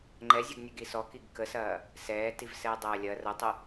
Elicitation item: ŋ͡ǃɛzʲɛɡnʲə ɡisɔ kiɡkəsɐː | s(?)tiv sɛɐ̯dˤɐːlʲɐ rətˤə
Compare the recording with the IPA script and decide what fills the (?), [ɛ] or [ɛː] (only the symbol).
ɛː